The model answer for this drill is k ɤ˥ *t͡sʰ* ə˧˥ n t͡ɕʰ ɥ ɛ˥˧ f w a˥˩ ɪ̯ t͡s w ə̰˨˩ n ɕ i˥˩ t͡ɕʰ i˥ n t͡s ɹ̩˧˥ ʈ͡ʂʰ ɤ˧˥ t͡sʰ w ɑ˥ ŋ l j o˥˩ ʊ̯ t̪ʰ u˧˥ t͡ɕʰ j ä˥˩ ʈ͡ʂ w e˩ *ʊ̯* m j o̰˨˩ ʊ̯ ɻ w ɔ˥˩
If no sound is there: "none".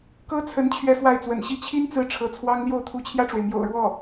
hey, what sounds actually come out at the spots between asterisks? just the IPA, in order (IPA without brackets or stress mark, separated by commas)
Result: t͡sʰ, ɪ̯